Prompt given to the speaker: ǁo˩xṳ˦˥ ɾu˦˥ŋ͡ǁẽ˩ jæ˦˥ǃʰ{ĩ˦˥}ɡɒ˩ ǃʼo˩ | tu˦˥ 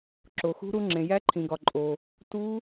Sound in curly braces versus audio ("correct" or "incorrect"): incorrect